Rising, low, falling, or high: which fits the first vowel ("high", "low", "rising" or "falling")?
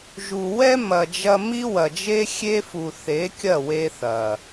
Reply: low